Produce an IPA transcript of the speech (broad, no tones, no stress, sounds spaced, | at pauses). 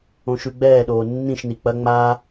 õ ʃ ʉ ɡ͡b ɛː ɗ oː nː ĩ ʃ n i k͡p ɐ ŋ͡m aː